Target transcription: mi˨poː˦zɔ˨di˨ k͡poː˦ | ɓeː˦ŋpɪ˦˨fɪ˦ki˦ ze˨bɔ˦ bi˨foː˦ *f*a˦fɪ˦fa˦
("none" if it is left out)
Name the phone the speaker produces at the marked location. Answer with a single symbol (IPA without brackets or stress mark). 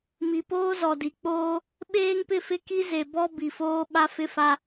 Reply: ɓ